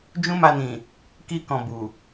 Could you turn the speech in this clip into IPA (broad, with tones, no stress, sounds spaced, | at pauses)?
d͡ʒ ũ˦ m a˧ n ĩ˨ | k i˧ k ɔ̃˨ b u˨